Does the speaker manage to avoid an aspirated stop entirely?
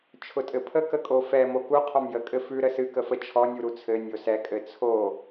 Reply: no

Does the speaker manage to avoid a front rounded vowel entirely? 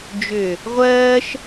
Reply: no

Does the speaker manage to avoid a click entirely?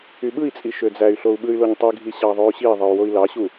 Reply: yes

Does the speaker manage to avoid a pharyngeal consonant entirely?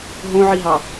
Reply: no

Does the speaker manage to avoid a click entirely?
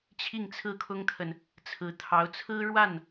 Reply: yes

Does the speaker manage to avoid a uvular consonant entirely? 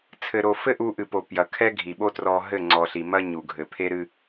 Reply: yes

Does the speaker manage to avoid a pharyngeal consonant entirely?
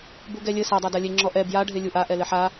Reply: no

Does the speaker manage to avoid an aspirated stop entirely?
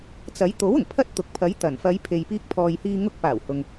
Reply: no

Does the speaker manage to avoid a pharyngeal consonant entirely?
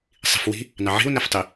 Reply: no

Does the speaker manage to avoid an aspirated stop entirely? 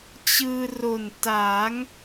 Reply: yes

